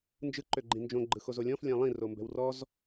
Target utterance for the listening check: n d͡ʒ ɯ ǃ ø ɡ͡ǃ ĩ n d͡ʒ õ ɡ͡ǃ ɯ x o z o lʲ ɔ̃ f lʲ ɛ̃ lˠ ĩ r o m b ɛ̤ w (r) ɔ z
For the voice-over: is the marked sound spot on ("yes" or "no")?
yes